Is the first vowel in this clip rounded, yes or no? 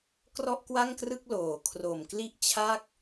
yes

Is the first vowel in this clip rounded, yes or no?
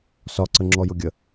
yes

